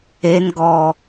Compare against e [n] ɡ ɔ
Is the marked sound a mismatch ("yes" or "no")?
no